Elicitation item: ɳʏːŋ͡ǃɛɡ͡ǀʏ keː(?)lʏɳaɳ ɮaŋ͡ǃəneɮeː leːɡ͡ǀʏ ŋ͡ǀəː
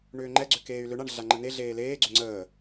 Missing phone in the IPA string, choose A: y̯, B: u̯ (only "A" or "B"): A